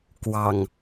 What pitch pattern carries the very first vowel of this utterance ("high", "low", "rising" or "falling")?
low